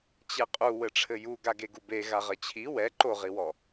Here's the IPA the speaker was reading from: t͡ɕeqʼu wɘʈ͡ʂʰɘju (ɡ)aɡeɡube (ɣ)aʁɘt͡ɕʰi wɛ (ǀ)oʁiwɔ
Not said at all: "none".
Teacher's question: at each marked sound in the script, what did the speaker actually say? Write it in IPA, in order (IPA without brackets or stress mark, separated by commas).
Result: ɡ, ɣ, ǃ